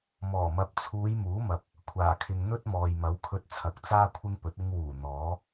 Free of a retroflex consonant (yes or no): yes